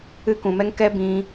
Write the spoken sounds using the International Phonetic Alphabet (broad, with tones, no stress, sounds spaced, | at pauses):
ɨ˧ k ũ˨ m ɛ˧ ŋ k ɛ˧ b ĩ˧